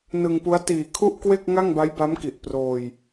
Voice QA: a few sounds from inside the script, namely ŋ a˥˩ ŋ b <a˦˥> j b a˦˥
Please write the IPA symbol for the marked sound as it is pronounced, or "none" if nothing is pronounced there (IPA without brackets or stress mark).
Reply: a˦˥